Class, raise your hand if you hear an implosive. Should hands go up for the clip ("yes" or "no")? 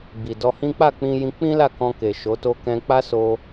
no